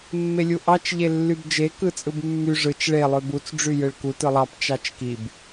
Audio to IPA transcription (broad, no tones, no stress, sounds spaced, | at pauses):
mː e lʲ u ʔ ɑ t͡ʃ ʎ e lː y b d͡ʒ e k ɯ t͡sʼ ɯ b mː y ʐ ɯ t͡ʃ ɭ e lˠ ø b u t͡s ɖ͡ʐ y j ɯ ɭ k u t ɯ lˠ ɑ p t͡ʃ ɑ t͡ʃ k i b